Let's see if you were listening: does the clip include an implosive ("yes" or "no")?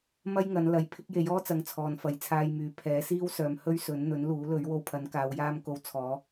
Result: no